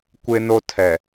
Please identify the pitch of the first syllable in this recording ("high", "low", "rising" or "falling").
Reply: high